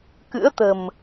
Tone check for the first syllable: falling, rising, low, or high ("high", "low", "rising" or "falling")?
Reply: rising